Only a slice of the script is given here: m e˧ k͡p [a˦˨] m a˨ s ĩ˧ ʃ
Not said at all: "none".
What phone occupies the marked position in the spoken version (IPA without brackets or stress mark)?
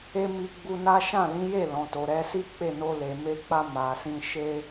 a˧